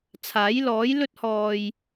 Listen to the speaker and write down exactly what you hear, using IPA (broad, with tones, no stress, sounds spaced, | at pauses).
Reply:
t͡sʰ aː˨˥ j l ɔː˨˥ j l ɵ˥ t̚ h ɔː˨ j